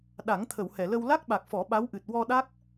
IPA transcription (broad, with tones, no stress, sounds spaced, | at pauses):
ɗ a˨˩˦ ŋ t̪ʰ ə˨˩˨ w h ɛ˨˩˨ l ə˧ w l a˦˥ k̚ ɓ a˨˩ k̚ f ɔ˨˩˦ ɓ a˧˥ w ʔ ɨ˨˩ t̚ w ɔ˧ ɗ a˦˥ k̚